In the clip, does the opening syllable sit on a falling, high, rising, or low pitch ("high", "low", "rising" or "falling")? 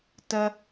high